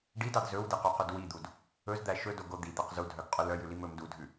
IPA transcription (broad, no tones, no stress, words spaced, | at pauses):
ɖidɑd zɵwdeqøqɵd wid̪ud | ɵzd̪æ ʃɵdoɡo d̪id̪æq zudʱœɡqʼɵ lœjʉlim ɵm dudʱʉ